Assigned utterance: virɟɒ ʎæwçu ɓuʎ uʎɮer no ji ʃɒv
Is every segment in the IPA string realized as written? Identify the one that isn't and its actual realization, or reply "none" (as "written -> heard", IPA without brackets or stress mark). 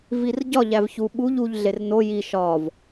w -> v